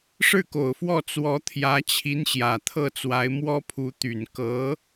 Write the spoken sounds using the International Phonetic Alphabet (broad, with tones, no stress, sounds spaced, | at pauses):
ʂ ɻ̩˥˩ k o˨˩ ʊ̯ f w ɔ˥˩ t͡s w ɔ˧˥ t̪ʰ j ä˧˥ t͡ɕʰ i˧˥ n ɕ j ä˨˩ t̪ʰ ɤ˥˩ t͡s w a˧˥ ɪ̯ m w ɔ˥ pʰ u˧˥ t̪ y˨˩ n k ɤ˧˥